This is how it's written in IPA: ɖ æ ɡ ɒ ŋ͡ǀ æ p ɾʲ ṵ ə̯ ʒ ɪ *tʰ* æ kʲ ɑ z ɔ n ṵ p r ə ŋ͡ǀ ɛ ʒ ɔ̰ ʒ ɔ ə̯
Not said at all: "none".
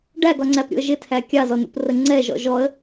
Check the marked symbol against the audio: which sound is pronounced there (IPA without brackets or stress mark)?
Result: tʰ